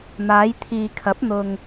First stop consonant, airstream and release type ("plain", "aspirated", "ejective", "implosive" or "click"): aspirated